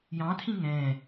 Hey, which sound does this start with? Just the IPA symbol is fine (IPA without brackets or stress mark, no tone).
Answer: j